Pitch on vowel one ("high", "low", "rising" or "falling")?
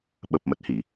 low